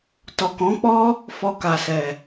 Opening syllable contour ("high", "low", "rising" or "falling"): low